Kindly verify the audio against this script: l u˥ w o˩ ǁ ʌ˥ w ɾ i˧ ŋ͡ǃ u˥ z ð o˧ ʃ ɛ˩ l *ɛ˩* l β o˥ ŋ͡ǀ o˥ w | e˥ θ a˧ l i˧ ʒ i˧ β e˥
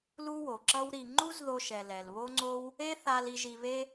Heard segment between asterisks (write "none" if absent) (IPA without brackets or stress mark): ɛ˩